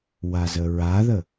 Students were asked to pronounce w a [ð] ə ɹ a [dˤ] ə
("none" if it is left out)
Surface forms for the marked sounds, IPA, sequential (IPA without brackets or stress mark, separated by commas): z, ð